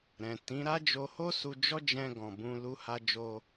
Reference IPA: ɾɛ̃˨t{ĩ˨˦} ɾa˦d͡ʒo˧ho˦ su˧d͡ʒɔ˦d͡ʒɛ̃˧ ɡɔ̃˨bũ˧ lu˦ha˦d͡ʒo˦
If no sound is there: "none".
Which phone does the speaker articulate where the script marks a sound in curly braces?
ĩ˨˦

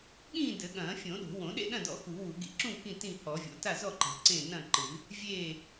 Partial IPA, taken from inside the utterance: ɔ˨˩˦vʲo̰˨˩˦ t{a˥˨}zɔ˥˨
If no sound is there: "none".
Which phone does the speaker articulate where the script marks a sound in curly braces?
a˥˨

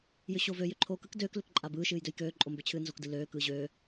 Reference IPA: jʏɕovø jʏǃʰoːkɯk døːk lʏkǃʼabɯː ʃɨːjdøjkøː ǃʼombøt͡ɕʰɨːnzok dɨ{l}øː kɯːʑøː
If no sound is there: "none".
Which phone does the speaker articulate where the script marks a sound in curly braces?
l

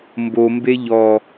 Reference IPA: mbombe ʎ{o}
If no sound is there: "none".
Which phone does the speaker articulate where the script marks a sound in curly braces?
ɔ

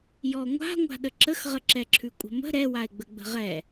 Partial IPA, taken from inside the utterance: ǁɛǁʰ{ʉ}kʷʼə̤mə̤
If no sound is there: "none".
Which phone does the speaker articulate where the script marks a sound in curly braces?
ʉ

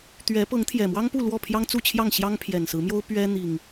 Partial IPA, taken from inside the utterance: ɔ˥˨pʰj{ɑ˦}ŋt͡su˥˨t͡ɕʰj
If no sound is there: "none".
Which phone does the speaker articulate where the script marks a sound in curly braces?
ɑ˦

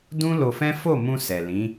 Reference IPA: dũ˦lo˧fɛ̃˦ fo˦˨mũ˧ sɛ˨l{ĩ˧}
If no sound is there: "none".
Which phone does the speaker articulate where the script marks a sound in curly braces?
ĩ˨˦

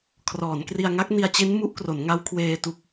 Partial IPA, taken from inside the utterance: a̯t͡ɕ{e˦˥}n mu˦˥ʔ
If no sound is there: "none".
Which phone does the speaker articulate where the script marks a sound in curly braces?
e˦˥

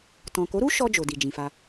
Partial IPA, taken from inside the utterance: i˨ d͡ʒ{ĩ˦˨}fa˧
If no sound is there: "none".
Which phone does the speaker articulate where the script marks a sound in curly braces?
ĩ˨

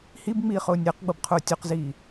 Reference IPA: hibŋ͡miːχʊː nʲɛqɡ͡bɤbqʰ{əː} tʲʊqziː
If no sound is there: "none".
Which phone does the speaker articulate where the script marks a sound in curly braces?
ʊː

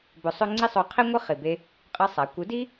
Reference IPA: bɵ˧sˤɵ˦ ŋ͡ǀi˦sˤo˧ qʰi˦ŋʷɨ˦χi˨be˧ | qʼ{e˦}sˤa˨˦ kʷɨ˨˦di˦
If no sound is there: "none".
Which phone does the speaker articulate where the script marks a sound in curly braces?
ɨ˦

